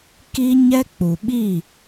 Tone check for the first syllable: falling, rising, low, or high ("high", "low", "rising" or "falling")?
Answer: high